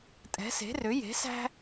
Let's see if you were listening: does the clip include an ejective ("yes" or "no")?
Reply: yes